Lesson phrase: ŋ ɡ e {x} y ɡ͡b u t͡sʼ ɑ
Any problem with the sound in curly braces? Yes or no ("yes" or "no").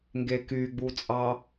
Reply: yes